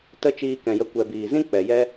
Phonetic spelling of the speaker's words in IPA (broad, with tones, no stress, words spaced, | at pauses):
tə˧ t͡ʃiː˧kɛ̃˨jə˧ kʷɛ˨ biː˨zĩ˦k͡pɛ˨ jɛ˦